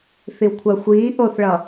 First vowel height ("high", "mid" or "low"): high